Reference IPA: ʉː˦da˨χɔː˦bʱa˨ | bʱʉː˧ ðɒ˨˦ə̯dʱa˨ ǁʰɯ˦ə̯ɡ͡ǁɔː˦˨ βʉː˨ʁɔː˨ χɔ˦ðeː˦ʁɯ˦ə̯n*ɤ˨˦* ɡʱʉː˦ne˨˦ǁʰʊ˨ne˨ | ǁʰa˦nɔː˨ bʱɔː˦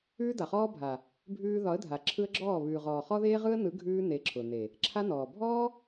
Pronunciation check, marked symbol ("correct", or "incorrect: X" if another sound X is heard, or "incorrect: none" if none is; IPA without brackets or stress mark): incorrect: ɯ˨˦